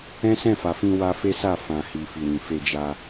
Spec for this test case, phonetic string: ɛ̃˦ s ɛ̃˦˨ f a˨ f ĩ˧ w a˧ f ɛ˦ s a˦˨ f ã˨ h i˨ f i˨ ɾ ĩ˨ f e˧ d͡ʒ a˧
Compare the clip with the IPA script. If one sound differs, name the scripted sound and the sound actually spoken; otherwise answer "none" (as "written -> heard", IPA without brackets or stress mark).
ɛ˦ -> e˦